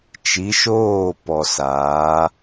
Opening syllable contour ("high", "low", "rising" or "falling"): rising